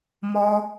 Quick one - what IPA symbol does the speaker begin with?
m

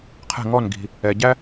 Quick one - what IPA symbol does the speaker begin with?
qʰ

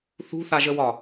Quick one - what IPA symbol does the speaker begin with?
θ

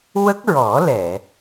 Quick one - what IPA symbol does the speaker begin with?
w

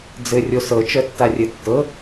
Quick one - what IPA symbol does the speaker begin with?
d͡z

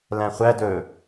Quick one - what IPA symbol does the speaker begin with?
l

